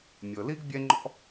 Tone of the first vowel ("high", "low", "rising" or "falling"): low